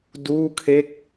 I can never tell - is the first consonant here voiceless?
no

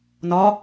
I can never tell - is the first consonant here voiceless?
no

